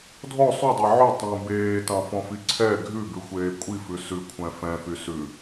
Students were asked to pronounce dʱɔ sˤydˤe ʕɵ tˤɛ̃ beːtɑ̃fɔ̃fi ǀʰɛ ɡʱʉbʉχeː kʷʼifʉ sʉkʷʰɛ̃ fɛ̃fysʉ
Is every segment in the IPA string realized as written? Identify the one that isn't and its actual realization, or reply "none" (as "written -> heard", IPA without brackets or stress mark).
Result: χ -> xʷ